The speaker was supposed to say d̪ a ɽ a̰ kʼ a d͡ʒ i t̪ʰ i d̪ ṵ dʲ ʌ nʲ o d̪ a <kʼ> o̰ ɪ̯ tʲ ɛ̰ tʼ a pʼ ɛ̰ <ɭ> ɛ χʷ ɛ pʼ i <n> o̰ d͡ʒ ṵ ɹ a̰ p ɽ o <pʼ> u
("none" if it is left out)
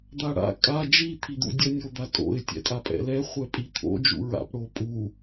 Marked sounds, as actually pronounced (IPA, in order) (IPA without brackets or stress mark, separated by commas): tʼ, l, t̪ʰ, pʼ